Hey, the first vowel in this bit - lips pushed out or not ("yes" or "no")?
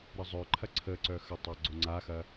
no